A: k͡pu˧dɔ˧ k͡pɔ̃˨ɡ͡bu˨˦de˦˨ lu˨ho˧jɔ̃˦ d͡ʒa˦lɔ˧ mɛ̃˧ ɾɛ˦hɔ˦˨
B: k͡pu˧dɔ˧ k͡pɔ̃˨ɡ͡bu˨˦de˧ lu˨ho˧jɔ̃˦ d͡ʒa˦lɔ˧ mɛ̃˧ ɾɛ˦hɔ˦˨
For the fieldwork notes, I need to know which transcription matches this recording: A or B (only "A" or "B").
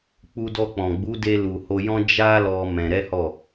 B